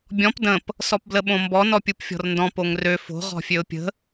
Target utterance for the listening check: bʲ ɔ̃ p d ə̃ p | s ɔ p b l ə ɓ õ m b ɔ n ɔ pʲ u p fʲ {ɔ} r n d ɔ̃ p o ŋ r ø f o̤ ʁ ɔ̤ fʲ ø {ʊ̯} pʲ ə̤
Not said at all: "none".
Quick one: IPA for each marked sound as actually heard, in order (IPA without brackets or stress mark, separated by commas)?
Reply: ɔ̤, ʊ̯